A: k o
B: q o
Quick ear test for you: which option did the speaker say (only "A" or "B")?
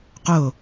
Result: B